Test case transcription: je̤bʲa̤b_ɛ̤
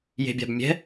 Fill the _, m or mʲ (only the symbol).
mʲ